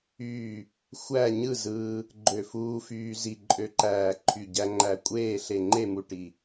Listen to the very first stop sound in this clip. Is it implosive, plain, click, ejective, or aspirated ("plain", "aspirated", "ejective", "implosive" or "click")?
click